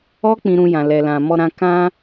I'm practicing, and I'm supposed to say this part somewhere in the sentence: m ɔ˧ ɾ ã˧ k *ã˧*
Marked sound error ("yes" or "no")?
no